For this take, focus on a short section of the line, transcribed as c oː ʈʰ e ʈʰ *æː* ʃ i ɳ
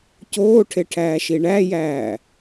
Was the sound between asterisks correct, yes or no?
yes